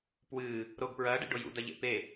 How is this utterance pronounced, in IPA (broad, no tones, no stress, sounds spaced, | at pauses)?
p w ɨː | ɾ o ɡ p ɹ ɐː ɖ ḛ ɖ o j ṵ d ɐ ʎ ḛ p e